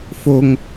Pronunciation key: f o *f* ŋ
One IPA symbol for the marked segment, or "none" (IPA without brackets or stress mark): none